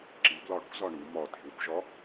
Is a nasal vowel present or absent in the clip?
absent